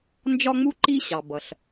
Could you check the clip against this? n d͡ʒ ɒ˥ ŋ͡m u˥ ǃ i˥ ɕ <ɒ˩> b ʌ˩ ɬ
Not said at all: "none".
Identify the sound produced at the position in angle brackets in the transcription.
ɑ˩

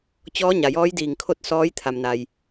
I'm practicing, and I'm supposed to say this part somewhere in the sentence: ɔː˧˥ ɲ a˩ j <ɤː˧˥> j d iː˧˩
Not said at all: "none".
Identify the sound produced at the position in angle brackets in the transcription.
ɔː˧˥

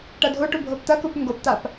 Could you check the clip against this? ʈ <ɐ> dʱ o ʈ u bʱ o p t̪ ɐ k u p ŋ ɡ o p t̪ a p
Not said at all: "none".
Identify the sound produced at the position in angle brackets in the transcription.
ɐ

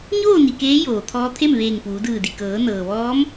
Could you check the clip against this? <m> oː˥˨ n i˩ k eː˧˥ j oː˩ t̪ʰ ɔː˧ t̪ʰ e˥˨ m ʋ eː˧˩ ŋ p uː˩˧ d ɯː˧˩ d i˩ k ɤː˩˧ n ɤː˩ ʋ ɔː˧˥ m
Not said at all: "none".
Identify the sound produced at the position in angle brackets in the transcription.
ɲ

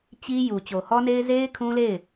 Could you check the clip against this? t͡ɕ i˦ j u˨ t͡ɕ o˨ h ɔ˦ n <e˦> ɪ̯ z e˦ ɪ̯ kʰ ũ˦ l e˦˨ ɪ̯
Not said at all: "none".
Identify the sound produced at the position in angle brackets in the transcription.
e˦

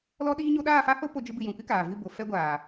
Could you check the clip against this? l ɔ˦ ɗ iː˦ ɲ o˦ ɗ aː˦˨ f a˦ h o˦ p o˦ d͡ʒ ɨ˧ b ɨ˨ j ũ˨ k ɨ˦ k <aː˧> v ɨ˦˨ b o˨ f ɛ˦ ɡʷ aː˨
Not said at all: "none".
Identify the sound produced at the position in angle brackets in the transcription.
aː˨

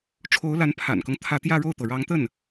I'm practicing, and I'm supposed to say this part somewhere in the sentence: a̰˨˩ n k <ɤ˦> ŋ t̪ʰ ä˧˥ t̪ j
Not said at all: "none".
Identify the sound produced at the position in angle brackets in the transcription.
ɤ˦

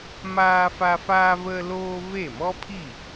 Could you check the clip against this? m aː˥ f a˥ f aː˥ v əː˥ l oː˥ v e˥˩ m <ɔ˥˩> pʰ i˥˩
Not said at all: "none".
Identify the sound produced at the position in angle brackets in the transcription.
ɔ˥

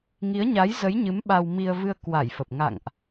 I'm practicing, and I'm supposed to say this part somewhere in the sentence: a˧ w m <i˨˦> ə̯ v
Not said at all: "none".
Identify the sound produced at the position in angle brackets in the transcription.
i˧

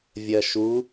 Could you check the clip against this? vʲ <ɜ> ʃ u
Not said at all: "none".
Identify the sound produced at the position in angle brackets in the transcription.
ɜ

